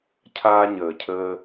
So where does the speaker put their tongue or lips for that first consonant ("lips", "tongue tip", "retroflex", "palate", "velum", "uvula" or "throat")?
palate